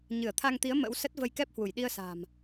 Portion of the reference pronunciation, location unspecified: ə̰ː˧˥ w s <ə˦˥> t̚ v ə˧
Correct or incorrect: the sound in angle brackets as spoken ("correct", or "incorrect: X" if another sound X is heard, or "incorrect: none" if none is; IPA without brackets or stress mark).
correct